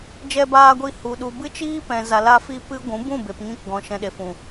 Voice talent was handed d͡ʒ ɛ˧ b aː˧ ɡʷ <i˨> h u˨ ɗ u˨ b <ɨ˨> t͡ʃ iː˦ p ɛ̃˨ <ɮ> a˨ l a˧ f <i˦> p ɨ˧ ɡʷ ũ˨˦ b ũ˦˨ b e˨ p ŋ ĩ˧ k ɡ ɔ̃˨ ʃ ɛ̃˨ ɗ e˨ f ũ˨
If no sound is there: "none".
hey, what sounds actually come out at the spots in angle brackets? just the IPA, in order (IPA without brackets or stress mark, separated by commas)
i˧, ɨ˦, z, i˧